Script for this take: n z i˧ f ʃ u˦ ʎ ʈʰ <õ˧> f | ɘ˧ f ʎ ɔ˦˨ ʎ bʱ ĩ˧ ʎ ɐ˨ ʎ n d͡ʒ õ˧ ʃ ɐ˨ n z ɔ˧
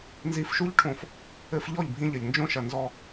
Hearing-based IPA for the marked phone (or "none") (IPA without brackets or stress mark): õ˧